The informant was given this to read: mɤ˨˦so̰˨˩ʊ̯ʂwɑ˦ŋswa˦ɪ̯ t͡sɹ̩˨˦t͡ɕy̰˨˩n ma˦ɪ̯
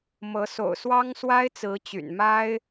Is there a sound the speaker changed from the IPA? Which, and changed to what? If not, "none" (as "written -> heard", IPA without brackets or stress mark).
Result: ʂ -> s